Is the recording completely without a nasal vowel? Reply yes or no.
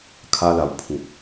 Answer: no